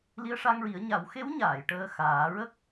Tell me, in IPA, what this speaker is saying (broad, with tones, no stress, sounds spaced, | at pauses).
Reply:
l i˧ ə̯ ʂ a˧ ŋ ɹ i˨˩˦ ə̯ ɲ a˨˩˦ w x e˧˥ w ɲ aː˨˩˨ j ʈ əː˧ x aː˨˩˦ ɹ ə˦˥ k̚